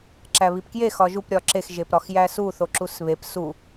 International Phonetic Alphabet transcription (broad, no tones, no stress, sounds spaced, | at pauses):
ǁ æ β i p k j e x ɒ ʒ u p ɾʲ ɒ ǁ e x ʒ e p ɾ ɒ x j æ s u θ o ǁ u s β e p s u